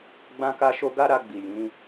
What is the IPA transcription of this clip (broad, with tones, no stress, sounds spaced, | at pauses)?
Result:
ɡ͡b ã˦ k a˦ ʃ o˦ ɡ a˦ ɾ a˧ ɡ͡b i˨ j ĩ˨˦